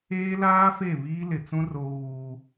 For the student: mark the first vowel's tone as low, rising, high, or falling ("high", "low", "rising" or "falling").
high